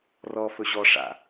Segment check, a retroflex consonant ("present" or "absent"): present